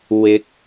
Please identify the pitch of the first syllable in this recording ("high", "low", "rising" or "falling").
rising